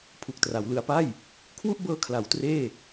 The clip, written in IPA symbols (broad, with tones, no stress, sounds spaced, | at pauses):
pʰ u˨˩ k̚ t r a˩˦ w l ɯ˧ a̯ p a˥˩ j | kʰ w u˥˩ ʔ b ɤː˧ kʰ l a˩˦ w t r eː˥˩